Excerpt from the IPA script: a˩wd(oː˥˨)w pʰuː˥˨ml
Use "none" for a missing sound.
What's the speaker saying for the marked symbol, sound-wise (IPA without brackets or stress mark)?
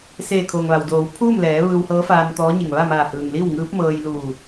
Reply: oː˩˧